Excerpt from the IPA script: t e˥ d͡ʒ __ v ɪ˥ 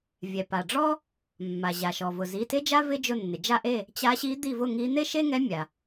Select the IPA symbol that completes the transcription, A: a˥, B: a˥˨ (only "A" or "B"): A